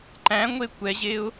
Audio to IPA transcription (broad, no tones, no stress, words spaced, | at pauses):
ǃæ̃ŋʷe kʷɛʑeʊ̯